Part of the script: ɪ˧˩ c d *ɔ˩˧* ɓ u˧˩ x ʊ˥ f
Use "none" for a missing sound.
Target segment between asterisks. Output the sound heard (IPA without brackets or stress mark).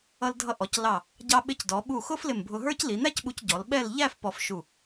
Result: ɔ˩˧